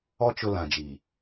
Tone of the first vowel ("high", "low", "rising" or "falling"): high